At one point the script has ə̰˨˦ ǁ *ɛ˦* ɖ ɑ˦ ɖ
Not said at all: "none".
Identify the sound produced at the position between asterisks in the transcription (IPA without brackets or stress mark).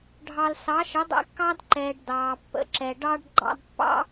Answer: ɛ˨